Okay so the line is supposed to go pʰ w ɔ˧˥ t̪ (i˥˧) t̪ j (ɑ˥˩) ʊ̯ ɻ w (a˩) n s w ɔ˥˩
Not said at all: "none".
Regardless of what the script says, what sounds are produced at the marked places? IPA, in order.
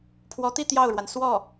i˥˧, ɑ˥˩, a˩

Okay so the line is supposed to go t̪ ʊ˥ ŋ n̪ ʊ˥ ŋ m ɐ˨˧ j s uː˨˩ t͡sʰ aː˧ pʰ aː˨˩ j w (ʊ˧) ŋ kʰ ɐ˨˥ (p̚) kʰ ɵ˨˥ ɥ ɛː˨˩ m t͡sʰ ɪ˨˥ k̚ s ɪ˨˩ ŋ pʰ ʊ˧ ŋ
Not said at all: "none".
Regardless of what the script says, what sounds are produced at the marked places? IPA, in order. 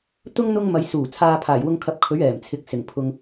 ʊ˧, p̚

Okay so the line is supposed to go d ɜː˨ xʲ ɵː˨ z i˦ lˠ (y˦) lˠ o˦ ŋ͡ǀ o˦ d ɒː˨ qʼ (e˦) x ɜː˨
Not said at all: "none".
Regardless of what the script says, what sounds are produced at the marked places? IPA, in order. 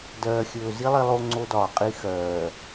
i˦, i˦

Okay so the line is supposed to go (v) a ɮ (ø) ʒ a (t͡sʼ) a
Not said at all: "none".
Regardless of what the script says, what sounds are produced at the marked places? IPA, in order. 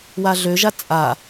w, ø, t͡sʼ

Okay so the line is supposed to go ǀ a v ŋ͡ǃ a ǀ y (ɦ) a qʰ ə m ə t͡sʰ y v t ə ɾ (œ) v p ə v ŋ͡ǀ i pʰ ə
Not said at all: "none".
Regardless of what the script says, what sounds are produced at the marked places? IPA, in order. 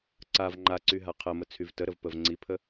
ɦ, ə

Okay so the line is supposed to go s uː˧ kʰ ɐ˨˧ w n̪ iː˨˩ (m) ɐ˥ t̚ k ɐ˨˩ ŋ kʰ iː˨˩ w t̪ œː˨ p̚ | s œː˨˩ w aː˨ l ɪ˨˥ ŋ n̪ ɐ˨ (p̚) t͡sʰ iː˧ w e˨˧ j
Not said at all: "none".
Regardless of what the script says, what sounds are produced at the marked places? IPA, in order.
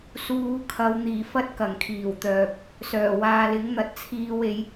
f, t̚

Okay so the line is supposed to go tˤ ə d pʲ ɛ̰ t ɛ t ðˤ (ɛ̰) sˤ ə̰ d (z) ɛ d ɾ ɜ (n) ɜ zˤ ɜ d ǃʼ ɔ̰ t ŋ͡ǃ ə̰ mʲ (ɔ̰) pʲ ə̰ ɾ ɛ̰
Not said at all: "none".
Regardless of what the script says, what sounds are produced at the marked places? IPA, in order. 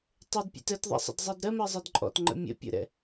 ɛ̰, zˤ, m, ə̰

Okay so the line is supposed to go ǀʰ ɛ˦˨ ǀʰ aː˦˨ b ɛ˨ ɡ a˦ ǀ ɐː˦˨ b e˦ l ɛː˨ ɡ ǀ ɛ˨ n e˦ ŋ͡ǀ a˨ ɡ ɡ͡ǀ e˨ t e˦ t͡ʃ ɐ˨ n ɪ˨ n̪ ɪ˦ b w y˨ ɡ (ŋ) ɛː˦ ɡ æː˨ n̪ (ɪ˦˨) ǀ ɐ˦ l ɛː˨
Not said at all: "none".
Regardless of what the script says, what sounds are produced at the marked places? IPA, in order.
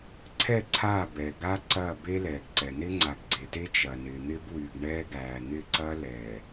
ɳ, ɪ˦˨

